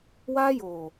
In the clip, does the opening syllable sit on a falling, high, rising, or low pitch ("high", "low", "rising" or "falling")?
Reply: high